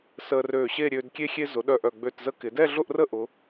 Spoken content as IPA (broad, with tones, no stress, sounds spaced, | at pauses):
s əː˧ r øː˧˩ ɕ e˥˧ ɾʲ øː˧ d kʲ e˥ xʲ e˧ z ʊ˩˧ ɗ œ˧˩ ʔ œ˧˩ ɡ͡b ø˧˩ t z ə˧ k ɪ˩˧ d ɛ˥˧ ɮ ʊ˥˧ ʔ r ə˥˧ ʔ ʊ˩˧